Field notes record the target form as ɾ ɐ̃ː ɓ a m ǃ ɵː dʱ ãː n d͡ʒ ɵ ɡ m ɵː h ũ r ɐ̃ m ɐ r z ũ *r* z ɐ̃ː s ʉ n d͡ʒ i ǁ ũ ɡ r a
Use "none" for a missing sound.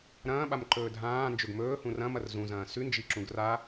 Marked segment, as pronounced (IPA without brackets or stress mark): none